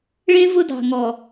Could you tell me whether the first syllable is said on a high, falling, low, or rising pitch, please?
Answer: high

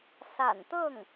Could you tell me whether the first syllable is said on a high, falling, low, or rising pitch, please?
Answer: low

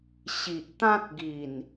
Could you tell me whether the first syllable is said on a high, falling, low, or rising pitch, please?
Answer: low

